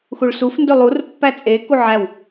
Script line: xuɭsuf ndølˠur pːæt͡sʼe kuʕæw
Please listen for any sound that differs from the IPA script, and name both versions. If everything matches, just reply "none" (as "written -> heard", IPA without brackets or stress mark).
none